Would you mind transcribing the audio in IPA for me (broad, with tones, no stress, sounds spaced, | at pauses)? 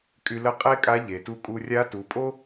kʼ y˧ l ə˧˥ qʼ e˥ kʼ a˧˥ ʎ e˩ t u˧ kʼ u˧ rʲ a˧˥ t u˩˧ pʼ o˥